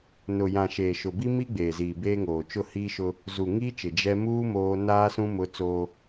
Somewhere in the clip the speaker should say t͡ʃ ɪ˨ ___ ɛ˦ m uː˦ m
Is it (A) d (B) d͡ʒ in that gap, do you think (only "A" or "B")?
B